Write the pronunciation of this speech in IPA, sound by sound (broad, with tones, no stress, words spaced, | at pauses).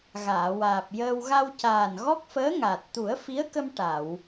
ɣaː˨˩˨waː˨˩p̚jəː˧w ɣa˧wcaː˨˩nɣɔ˦˥k̚fəː˧˥ ŋa˨˩t̚ t̪u˨˩˦ə̯fi˧˥ə̯kə˧m ʈa˨˩˨w